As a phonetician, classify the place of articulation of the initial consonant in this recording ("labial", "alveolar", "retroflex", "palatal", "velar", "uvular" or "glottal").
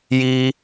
palatal